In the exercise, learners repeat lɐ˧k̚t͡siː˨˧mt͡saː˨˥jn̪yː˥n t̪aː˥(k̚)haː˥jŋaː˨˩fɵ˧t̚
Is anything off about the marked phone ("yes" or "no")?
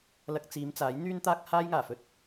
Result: no